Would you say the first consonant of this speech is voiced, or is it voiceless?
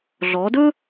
voiced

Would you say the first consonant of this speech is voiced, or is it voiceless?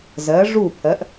voiced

